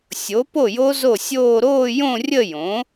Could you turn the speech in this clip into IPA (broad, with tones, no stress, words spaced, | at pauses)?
sʲo˩˥po˥˩jo˦˥ zo˥˩sʲoː˥˧ ɾoː˥˧ jõ˥˧rʲə˥˧ jõ˩˥